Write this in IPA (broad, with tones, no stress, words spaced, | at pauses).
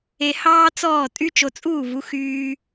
e˧hɑː˦ t͡sɔː˦˨tʼy˦ t͡ʃo˧t͡sʼuː˦˨vu˨˦ xyː˦